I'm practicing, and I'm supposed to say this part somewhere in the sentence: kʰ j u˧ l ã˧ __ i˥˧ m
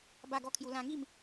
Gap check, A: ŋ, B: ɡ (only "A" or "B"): A